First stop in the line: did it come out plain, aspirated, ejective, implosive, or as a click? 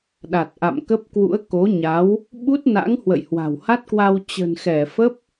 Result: implosive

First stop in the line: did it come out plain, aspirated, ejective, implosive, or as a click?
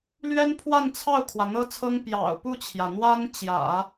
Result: aspirated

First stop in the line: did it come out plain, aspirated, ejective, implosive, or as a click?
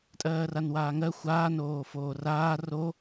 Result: ejective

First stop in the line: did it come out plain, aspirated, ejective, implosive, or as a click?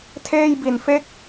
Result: aspirated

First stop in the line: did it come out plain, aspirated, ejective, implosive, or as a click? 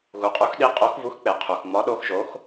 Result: ejective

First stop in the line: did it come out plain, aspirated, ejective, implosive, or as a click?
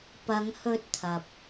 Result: plain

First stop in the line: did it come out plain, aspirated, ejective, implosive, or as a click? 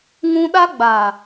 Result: implosive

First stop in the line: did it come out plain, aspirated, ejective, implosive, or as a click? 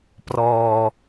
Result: plain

